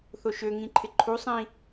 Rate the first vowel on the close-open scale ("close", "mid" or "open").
mid